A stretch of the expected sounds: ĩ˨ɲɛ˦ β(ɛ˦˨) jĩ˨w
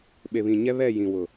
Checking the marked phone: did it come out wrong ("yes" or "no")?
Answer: no